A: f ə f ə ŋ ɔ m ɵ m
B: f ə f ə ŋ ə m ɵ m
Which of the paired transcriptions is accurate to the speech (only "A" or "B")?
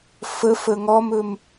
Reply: A